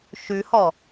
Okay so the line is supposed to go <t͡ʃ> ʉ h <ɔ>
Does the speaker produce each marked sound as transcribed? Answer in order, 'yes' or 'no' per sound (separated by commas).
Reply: no, yes